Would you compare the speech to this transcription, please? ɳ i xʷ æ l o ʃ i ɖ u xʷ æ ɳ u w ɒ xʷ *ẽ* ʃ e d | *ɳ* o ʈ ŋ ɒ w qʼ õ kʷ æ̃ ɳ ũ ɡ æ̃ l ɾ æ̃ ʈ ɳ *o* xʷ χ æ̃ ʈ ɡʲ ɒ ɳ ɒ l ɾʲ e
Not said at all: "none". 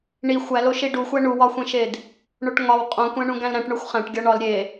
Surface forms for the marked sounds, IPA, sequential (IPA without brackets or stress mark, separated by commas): ẽ, ɳ, o